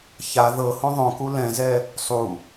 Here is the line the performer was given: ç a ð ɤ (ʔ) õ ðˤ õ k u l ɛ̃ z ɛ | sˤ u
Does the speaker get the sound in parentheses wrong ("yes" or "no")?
yes